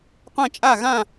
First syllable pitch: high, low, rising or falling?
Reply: falling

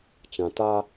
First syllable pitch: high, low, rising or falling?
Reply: low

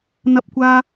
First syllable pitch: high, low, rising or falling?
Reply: high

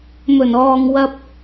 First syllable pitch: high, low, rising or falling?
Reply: low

